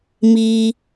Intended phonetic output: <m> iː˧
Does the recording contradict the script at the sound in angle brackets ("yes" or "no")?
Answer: no